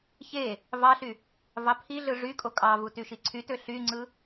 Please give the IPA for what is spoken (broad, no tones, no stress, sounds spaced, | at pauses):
ç e | v ɑ ɬ y | v ɑ pʰ i ɮ ɯ ʐ y kʼ o kʼ ɑ v u t y ʃ i ǀʰ y t ø ɬ y ŋ͡ǀ ɯ